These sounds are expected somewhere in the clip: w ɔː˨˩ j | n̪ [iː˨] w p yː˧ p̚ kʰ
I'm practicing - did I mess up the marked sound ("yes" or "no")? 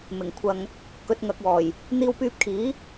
yes